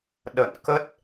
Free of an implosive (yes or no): no